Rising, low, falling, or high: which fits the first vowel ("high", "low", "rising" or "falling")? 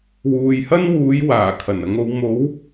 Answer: low